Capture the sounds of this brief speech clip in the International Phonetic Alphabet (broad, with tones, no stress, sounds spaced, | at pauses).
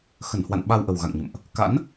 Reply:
x ə˧˩ n h w a̰˧˨ n ɓ a˧ w ʔ ə˨˩ w ɣ a̰˧˨ ŋ ɲ ə̰˧˨ m ʔ | k a̰˧˥ n